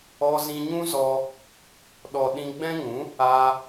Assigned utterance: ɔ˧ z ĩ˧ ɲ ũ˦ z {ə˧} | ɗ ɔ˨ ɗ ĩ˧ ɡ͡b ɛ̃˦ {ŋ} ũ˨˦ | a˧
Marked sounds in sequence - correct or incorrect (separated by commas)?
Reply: incorrect, correct